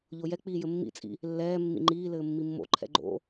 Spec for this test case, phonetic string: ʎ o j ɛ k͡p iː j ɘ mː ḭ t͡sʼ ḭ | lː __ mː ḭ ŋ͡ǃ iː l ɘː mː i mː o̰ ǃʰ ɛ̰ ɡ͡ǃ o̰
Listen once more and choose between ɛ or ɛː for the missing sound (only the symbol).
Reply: ɛː